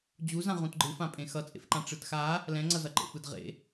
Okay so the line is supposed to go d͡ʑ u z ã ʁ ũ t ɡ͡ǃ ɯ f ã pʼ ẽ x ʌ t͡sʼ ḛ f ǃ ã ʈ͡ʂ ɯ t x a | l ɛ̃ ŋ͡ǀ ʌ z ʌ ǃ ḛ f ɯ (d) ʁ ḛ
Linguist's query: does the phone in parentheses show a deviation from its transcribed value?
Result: no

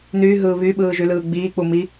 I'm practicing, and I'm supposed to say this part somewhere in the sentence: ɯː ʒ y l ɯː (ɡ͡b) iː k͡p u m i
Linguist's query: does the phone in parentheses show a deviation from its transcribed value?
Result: no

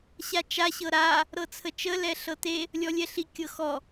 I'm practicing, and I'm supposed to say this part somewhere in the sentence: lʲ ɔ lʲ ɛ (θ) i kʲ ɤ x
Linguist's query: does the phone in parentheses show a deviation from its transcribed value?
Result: yes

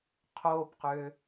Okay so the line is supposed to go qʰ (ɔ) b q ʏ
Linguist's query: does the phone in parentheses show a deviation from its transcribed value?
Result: yes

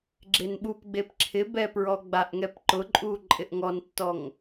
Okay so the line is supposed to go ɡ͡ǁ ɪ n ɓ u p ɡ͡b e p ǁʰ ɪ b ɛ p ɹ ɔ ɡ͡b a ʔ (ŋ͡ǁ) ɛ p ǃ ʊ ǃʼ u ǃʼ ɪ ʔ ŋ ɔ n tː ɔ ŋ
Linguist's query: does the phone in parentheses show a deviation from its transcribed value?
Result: yes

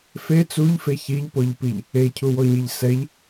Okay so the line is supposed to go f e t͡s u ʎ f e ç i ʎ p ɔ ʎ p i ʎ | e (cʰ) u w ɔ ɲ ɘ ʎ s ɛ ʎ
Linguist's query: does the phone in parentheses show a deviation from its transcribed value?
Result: no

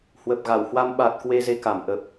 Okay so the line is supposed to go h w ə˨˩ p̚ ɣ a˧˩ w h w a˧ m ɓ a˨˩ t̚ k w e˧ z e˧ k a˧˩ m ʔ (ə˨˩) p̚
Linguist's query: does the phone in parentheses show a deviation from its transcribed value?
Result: no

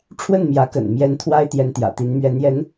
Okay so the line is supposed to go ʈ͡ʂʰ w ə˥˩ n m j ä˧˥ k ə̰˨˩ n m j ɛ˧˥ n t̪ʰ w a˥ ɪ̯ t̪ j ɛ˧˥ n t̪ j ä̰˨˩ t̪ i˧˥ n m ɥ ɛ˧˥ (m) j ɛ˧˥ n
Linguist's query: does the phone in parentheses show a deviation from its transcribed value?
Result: yes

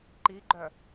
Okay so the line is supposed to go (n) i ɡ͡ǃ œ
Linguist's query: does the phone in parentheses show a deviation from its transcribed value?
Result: yes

